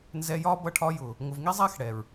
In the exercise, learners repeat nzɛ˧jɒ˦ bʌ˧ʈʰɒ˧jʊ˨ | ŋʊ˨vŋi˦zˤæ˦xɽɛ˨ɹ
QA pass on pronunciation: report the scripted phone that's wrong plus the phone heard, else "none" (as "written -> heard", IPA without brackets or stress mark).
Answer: none